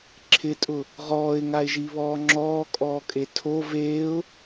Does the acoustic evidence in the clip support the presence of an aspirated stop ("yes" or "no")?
yes